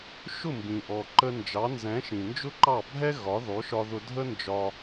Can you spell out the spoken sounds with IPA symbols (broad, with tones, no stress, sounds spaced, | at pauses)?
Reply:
ʃ ʊ˥˩ m b ĩ˩ ʔ ɔ˩ ǃ ə˧ n d͡ʒ ɑ˩˥ n z ɛ̃˩˥ ʃ ĩ˩ n d͡ʒ ʊ˥ ǃ ɑ˥˩ bʱ ɛ˥ ɣ ɒ˩˥ ð ɔ˩˥ ʃ ɒ˧ ð ʊ˧ dʱ ə˥ n d͡ʒ ɒ˧